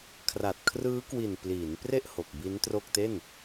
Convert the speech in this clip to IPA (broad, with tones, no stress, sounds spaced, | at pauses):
kʰ r a˨˩ t̚ kʰ r ɯː˦˥ k w i˨˩ n p l iː˩˦ n p r e˥˩ ʔ h o˨˩ k̚ b i˦˥ n t r o˥˩ k̚ t e˥˩ n